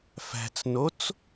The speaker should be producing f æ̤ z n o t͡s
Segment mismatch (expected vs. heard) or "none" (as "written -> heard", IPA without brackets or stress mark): z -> t͡s